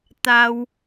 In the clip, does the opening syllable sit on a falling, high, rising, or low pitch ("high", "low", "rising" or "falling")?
low